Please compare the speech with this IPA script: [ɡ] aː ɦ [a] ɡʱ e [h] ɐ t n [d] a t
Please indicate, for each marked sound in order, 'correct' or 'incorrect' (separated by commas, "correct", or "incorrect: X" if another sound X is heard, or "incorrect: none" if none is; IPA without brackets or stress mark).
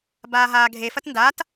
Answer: incorrect: b, incorrect: aː, incorrect: f, correct